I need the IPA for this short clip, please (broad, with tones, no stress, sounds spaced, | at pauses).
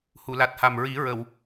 h u˨˩˨ l a˨˩ t̚ h a˨˩ m ɹ i˨˩˦ ɹ ə˨˩˨ w